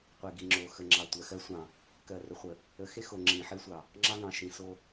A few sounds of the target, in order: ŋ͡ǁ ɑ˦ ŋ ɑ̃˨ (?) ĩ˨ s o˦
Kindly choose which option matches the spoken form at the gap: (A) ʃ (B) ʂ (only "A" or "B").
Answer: A